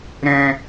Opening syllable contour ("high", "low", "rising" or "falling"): low